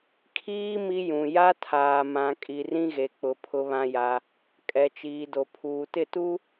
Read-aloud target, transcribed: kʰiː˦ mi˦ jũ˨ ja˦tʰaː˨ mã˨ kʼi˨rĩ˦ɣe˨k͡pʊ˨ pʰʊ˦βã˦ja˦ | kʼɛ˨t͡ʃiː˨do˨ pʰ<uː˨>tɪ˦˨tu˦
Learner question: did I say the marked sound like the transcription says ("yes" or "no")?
yes